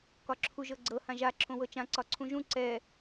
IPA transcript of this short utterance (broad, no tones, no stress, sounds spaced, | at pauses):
k ɒ ǁʰ u ʒ ɤ ɡ͡ǀ ɤ h ã ʒ a ǁʰ õ w ɤ t͡ʃ ã ǀ ɒ ǀʰ ũ ʒ ũ ǀ ɛ